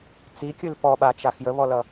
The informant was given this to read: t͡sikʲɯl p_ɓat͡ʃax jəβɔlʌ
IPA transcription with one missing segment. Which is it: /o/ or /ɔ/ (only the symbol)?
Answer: ɔ